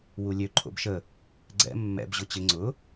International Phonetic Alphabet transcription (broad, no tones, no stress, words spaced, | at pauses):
wulʲø ǃʰo̰bʃə | ɡ͡ǀɛ̰ mːɛ̰b ʑʊt͡ɕɪ ŋ͡ǀʊ